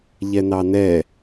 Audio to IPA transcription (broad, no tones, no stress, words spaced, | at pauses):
ʎɛnɑnɛ